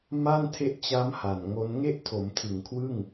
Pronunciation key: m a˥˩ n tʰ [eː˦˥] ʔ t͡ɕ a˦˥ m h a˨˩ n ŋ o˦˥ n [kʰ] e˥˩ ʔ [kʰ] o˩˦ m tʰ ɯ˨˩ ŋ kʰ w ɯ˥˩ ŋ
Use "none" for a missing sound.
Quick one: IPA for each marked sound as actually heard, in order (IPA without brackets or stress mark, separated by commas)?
e˦˥, ŋ, tʰ